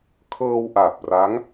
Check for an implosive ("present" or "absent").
absent